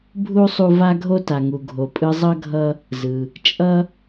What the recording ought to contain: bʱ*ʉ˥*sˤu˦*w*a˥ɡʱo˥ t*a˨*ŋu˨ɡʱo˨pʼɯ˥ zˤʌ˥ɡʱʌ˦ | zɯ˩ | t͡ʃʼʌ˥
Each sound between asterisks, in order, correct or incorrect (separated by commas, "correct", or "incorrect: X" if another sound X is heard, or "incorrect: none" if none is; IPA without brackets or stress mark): incorrect: u˥, incorrect: v, correct